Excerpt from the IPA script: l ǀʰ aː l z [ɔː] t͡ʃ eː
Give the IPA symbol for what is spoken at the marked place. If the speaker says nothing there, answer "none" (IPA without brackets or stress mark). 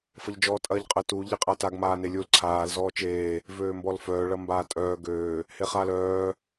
ɔː